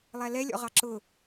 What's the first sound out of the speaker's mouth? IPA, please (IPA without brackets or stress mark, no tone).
lˠ